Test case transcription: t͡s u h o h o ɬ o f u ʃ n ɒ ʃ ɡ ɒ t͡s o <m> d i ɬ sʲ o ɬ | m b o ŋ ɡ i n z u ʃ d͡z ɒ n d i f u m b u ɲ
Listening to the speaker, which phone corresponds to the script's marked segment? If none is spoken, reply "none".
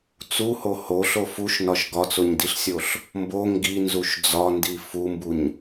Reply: ɲ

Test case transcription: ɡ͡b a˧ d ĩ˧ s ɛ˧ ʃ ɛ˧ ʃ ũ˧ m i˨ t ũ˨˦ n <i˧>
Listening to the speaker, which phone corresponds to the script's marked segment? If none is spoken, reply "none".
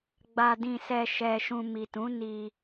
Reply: i˧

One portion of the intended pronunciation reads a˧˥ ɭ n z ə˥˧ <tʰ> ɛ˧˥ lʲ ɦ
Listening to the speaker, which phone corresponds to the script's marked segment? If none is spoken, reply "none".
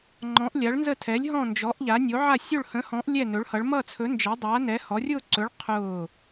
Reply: tʰ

